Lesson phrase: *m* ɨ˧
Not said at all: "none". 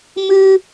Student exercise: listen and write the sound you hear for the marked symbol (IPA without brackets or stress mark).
m